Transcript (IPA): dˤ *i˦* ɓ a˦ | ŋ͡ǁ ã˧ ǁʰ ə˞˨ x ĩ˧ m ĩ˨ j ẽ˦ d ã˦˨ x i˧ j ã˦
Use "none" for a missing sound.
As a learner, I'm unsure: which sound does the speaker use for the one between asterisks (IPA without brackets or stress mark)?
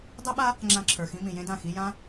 e˦